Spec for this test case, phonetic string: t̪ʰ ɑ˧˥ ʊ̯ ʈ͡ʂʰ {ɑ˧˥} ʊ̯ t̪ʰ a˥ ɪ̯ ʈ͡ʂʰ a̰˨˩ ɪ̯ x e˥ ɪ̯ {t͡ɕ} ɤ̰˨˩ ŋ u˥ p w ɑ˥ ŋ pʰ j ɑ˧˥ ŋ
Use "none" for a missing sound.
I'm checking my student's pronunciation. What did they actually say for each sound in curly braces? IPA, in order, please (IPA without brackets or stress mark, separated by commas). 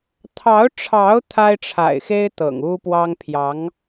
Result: ɑ˧˥, t̪